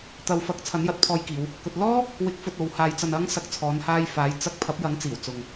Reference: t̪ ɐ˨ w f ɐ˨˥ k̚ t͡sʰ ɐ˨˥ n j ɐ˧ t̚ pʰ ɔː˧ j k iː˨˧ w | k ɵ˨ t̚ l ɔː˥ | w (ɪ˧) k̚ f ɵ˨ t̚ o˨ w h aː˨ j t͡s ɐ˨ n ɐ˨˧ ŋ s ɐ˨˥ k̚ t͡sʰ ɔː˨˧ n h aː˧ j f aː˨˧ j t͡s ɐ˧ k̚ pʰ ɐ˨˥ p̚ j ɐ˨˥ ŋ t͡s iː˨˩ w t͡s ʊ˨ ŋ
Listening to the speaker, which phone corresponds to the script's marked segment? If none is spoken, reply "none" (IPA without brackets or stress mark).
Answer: ɪ˨˥